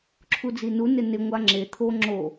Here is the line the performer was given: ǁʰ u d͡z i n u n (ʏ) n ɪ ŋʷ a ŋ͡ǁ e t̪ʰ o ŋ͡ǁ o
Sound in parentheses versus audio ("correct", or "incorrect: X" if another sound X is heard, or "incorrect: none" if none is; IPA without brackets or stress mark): incorrect: ɪ